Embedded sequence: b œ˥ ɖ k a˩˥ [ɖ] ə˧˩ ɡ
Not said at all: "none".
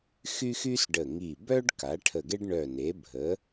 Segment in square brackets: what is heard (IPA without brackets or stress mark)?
ʈʰ